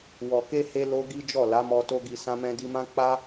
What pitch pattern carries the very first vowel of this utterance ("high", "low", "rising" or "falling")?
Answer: low